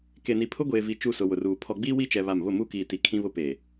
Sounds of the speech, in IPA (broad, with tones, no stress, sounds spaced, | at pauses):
k e˨ n i˨ pʰ ʊ˦ ɡʷ eː˨ v i˨ t͡ʃ u˦˨ s ʊ˨ w ʊ˨ r uː˨ pʰ ɔ˨ ɡ͡b iː˦ w i˦ t͡ʃ ɛ˦ β a˦˨ m β ʊ˦˨ m uː˦ k iː˨ t i˨ kʰ ĩ˦ β ʊ˦ p eː˨